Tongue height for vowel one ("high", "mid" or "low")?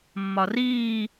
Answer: low